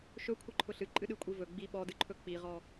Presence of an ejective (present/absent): present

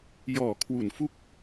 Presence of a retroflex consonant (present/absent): absent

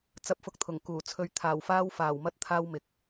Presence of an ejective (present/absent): absent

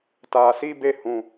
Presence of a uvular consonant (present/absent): absent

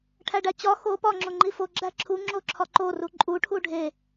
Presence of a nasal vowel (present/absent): absent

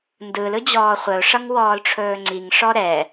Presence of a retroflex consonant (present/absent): present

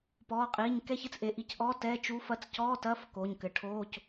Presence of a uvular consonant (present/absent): present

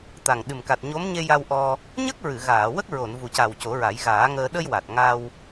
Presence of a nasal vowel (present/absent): absent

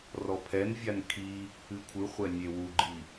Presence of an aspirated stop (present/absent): present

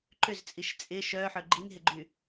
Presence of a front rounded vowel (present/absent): present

